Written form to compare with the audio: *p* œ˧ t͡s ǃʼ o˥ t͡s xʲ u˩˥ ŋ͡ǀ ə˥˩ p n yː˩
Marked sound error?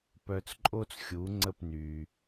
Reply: no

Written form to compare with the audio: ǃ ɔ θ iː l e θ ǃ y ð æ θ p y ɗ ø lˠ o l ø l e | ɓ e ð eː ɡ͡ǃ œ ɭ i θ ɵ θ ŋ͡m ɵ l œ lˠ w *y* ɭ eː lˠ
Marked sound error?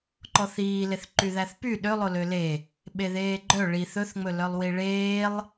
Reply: yes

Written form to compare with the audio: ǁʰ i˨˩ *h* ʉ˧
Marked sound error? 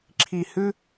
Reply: no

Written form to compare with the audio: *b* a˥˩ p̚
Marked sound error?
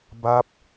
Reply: no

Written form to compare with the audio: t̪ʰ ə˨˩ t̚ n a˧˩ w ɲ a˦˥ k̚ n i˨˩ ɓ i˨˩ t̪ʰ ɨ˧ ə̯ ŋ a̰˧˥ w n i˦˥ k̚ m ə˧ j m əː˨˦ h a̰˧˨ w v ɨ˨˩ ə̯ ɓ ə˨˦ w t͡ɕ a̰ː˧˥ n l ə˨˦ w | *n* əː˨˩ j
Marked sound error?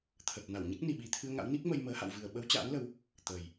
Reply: yes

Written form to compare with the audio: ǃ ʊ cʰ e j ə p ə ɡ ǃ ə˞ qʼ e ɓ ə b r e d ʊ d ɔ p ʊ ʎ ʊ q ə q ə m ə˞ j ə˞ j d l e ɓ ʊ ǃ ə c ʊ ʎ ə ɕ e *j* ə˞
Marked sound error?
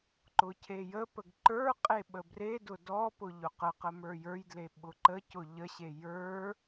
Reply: no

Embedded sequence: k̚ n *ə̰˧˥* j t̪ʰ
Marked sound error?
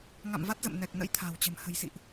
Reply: no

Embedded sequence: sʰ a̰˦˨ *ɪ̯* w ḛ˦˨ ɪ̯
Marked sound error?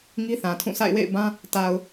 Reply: no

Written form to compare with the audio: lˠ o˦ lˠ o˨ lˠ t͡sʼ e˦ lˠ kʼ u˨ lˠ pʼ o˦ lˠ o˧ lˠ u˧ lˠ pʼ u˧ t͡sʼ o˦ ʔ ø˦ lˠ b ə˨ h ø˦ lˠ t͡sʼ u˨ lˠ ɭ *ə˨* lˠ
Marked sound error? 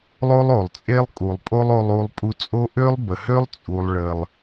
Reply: no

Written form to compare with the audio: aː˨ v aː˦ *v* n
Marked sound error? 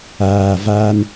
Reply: yes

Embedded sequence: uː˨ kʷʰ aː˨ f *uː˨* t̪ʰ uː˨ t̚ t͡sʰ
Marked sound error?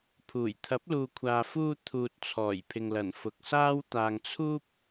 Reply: yes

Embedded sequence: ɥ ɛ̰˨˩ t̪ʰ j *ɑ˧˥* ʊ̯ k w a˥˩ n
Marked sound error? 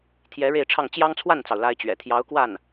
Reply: no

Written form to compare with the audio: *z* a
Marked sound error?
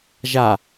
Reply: yes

